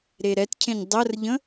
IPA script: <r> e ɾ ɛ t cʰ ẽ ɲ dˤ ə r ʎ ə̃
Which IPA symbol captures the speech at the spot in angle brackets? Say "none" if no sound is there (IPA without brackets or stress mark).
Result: ɾ